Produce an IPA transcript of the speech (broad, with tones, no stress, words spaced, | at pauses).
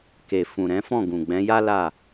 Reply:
ke˨ fũ˨ɾɛ̃˨˦fɔ̃˦˨ ɡũ˨ɡ͡bɛ̃˨˦ja˦ la˦˨